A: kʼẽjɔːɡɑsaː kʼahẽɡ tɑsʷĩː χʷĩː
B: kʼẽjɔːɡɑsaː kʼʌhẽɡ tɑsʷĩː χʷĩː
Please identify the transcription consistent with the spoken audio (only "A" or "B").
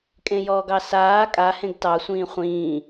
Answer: A